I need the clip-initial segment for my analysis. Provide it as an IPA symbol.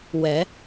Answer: w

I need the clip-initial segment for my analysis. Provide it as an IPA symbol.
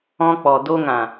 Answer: ɔ̃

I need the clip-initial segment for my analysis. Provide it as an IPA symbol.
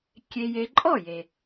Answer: kʲ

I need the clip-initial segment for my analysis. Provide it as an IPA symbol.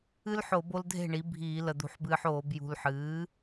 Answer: ɨ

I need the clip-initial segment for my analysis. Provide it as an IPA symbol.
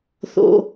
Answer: θ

